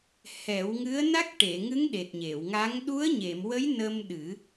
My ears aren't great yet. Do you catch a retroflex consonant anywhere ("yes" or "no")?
yes